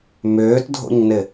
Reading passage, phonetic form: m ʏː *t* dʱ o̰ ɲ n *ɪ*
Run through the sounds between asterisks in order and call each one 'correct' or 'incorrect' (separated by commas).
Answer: correct, correct